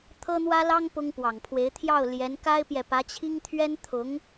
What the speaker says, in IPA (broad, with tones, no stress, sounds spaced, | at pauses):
t̪ʰ ɤ˥ n̪ w ä˥ l ɑ˥ ŋ p ʊ˥ ŋ p w ɑ˨˩ ŋ pʰ w e˧˥ ɪ̯ t̪ʰ j ɑ˥˩ ʊ̯ l j ɛ˧˥ n k a˥ ɪ̯ p j ɛ˨ p ä˧˥ t͡ɕʰ i˥ ŋ t̪ʰ ɥ ɛ˥ n t̪ʰ ʊ˧˥ ŋ